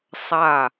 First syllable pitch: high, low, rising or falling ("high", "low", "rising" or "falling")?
falling